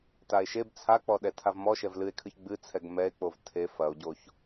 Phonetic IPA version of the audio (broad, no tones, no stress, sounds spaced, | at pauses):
t a e̯ ʃ e b t͡sʰ a k͡p ɔ ɗ ɛ tʰ a v m ɔ ʃ ɛ v l ɨ e̯ kʰ ɨ ç ɡ͡b ɨ t͡sʰ ɛ ɡ m ɛ e̯ k͡p o v tʰ e f ɐ o̯ ɟ o ç